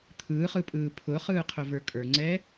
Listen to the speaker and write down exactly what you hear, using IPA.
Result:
t̪ʰ ɯː χ ɯ pʼ ɯː pʰ ʊ χ ɯː qʰ ʊ v ə˞ kʼ ə˞ ŋ͡ǀ ɛː

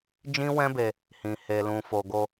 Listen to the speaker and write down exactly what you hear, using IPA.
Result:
d͡ʒ ĩ˦ w ɛ̃˦ b e˧ | h ĩ˨ h e˨ l ũ˨ f o˨ ɡ o˧

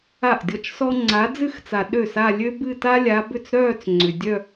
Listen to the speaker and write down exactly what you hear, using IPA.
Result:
a˥˩ ʔ dʲ ɔ˥˩ t͡ʃ s ɔ˥ ŋ͡ǀ a˨˦ d͡z ɨ˥˩ x t͡s a˨ ɗ ø˥˩ s a˥˧ lʲ ø˥ b ɨ˥˧ t a˥ lʲ a˨˦ b ʏ˥˩ t͡s ɾ œː˥˧ t͡s ŋ͡ǀ ʏ˨ dʲ œ˥˧

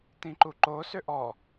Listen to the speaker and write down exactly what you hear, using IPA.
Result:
t ĩ ǃ u ǃ o s ʏ ʔ ɔ

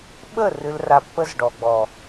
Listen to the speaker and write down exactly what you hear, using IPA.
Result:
ɓ ə˦˨ r ɨ˨ l r a˨ pː ə˦ z ɖ ɔ˨ ɡ͡b ɔ˨

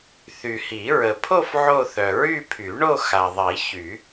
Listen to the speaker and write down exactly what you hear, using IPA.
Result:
θ y˨ h i˨˩˦ ɹ ə˨ pʰ o˥˧ f ʕ o˥˧ θ œ˨ ɹ y˥˧ pʰ y˨˩˦ ɳ o˥˧ x a˨ ðˤ i˨˩˦ ç y˨˩˦

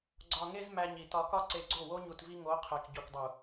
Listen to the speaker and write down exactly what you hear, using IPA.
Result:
ɡ͡ǀ ɒ˨ ŋ e˧ z m æ˧ ɲ i˨ t ɒ˨ k ɒ˧ ǀ e˨ ɡ͡ǀ o˦˨ w o˦ ɲ u˨ t v i˧ ŋ o˨˦ qʰ æ˨ k ɟ o˨ k dˤ u˨

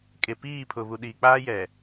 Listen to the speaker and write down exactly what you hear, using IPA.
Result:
kʼ e˨ p iː˦˨ pʰ ʊ˨ β u˨ ɗ i˨ k͡p aː˦ j ɛ˨

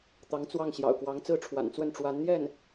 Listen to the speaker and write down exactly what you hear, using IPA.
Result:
t̪ ɑ˧˥ ŋ t͡s w ɑ˥˩ ŋ ɕ j ɑ̰˨˩ ʊ̯ k w ɑ˧˥ ŋ t͡s ɹ̩˥˩ ʈ͡ʂʰ w a̰˨˩ n t͡s w ə˥˩ n ʈ͡ʂ w a˧˥ n n̪ j ɛ˥˩ n

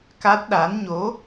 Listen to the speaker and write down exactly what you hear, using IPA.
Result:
k a˦˥ t̚ ɗ a˧˥ n ɲ o˧˥

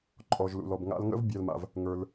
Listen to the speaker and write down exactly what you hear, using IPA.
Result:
ǃʼ ɔ˩ ʒ l ṵ˩ l ɔ˩ b ŋ a̰˧ l ŋ ə̰˥ v bʲ æ˧ l m a̰˩ v | ŋ ə˞˩ l

